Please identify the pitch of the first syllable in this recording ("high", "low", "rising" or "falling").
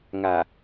low